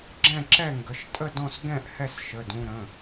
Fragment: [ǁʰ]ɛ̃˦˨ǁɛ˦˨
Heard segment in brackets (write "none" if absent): ɡ͡ǁ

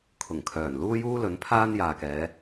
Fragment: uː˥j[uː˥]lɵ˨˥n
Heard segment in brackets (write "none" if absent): uː˥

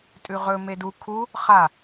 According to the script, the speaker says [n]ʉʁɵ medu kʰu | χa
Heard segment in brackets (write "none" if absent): tʼ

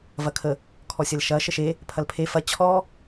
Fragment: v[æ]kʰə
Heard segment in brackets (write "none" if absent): ɐ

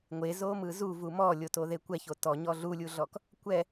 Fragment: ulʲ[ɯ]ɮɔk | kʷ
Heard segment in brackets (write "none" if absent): u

